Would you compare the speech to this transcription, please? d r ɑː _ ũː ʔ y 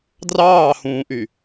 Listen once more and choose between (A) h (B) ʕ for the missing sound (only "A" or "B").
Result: A